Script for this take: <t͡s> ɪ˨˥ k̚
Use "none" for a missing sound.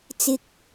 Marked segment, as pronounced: t͡s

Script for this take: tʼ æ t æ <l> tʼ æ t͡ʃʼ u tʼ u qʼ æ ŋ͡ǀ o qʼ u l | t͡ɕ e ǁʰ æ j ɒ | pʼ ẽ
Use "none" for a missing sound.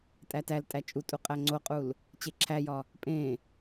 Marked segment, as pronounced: l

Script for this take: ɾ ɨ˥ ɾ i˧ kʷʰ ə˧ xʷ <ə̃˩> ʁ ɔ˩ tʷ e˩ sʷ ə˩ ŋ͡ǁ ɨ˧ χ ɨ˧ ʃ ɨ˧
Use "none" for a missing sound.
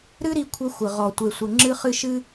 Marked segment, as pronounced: ə˩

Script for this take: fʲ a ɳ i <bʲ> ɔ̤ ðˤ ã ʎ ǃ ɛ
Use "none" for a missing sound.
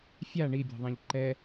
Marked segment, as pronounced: bʲ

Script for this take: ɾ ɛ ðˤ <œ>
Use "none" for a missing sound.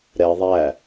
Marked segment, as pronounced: æ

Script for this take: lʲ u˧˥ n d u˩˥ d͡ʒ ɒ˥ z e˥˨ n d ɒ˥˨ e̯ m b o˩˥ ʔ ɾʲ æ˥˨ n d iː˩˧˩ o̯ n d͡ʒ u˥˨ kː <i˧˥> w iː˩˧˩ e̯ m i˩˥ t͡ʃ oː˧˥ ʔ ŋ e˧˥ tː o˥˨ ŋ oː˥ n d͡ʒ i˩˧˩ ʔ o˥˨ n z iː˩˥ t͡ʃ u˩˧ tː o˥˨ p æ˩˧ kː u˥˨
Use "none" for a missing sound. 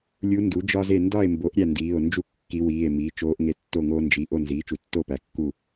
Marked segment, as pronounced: i˧˥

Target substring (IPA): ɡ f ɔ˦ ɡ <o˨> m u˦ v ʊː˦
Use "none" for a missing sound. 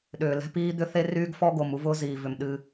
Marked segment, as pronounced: o˨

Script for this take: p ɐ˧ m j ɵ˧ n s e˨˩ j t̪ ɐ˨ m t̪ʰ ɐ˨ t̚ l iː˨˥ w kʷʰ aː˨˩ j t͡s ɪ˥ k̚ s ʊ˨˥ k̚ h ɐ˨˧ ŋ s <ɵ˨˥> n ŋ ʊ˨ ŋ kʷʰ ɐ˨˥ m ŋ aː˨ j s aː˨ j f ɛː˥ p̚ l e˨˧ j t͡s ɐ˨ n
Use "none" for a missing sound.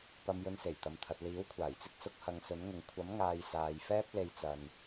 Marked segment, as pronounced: ɵ˨˥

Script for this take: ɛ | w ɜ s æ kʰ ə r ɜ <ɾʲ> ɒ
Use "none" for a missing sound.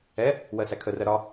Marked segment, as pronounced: ɾ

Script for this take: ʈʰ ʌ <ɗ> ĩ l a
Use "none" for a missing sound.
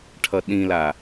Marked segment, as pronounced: ɗ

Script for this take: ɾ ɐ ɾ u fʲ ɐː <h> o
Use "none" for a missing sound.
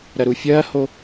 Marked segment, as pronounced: h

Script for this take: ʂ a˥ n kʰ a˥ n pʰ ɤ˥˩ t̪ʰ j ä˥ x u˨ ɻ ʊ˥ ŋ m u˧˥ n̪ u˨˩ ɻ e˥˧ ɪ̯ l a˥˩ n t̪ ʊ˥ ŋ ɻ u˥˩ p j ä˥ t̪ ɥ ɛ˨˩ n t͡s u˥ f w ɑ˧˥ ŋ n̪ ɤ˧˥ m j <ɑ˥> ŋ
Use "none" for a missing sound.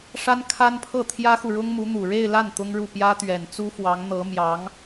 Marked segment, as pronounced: ɑ˧˥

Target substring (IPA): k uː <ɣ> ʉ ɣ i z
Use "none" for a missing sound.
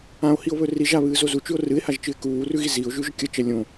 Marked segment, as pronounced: r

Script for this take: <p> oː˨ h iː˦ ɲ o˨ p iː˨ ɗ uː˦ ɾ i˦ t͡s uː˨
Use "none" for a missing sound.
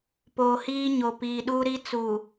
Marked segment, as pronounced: p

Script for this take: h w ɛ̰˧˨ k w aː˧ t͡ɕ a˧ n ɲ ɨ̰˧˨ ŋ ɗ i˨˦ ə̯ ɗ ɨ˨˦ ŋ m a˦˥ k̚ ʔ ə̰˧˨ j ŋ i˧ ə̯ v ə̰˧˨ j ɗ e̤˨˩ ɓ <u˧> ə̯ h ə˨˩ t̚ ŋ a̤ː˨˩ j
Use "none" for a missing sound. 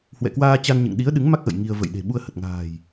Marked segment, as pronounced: u˧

